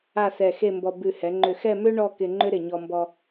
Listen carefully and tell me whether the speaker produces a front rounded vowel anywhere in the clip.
yes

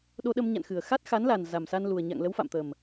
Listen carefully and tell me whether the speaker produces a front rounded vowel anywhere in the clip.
no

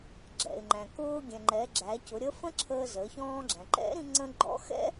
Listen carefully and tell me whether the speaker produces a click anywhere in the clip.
yes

